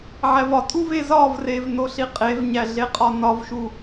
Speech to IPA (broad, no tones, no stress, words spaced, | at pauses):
ʕævɒtʼuv ezɒvrev noɬiqʼevɲæ ɮeqʼɒnɒvʃu